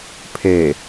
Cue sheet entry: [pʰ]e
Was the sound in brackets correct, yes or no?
yes